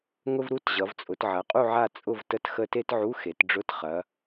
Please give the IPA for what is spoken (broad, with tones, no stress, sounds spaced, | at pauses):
ŋ ʊ˥ v ɾ u˧˥˧ t ʑ ʌ˩˧ v t͡sʼ ʊ˩˧ t ʕ ɐ˩˧ qʼ u˦˨ ʕ a˦˨ t͡sʼ ʊ˦˨ v t ə˧˥˧ t x ə˦˨ t e˥ t ʕ u˧˥˧ x e˩˧ t ɖ͡ʐ ʊ˧˥˧ t χ ɐ˩˧